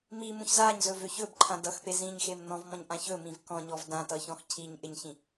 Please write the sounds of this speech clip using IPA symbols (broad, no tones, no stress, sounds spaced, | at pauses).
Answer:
m i m ũ ç z a ɲ z ɵ v ø ç ɵ b ǃʰ ã d ʌ x p e z ĩ ɲ x e m n ɔ̃ v m ɔ̃ ɲ ʔ ã ç ɵ m ĩ v k ɔ̃ ɲ ɔ v d ã t ʌ ç ɔ̃ x cʰ i ɲ ʔ ɪ ɲ ç ĩ